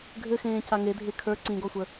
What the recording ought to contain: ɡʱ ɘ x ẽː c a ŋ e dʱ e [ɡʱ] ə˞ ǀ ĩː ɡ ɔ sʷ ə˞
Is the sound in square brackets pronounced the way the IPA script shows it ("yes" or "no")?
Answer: no